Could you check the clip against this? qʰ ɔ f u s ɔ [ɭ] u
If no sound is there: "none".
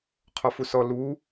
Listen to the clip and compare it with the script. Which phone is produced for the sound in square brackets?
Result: l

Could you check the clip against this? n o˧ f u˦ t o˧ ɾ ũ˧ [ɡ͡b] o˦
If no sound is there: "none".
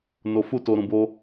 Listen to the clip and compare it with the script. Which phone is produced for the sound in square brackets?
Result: b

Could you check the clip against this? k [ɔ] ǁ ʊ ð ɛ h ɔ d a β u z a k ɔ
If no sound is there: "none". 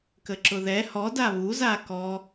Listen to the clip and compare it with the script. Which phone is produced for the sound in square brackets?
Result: ə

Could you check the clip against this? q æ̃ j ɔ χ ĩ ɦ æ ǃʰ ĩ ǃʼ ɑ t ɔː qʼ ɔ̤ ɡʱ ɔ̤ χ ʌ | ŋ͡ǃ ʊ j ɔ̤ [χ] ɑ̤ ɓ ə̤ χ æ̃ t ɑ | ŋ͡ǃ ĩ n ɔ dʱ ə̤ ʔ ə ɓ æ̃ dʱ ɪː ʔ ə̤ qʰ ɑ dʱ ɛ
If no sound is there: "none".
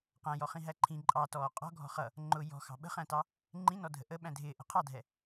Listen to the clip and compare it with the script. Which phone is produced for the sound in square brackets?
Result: x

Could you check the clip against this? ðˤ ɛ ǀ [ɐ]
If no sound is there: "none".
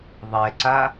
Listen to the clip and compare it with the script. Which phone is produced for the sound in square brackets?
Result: a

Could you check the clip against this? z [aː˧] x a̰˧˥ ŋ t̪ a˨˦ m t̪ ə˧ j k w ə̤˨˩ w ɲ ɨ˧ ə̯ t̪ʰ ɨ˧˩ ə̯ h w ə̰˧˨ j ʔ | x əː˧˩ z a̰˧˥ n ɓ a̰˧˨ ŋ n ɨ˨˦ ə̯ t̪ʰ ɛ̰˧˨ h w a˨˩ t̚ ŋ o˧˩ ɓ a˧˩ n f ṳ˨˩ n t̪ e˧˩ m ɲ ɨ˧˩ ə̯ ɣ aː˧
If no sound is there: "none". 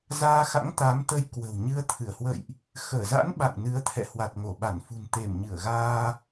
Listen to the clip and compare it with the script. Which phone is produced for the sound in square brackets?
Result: aː˧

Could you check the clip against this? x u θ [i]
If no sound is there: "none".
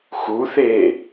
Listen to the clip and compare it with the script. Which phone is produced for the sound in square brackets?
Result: e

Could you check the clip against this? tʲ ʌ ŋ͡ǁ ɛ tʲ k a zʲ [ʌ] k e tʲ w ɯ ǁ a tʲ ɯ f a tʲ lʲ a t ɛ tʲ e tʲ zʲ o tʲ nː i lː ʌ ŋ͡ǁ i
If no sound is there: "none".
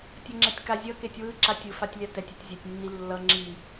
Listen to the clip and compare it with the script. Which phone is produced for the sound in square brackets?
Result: ʌ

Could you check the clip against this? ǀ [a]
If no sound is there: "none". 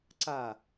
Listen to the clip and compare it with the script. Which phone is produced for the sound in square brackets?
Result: a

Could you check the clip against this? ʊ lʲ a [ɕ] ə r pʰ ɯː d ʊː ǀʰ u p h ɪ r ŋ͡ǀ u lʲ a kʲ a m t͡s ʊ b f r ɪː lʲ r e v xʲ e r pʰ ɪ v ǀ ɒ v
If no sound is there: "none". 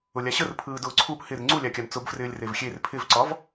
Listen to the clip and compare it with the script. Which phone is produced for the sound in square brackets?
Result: ɕ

